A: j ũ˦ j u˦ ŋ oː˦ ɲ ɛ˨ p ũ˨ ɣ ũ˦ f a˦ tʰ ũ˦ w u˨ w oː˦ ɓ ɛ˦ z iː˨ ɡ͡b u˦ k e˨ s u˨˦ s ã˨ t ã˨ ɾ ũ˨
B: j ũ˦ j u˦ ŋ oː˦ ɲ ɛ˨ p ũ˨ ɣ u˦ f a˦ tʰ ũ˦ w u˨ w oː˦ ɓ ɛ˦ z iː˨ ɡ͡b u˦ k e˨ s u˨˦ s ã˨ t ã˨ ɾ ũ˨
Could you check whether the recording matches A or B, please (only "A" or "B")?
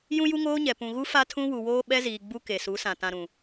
B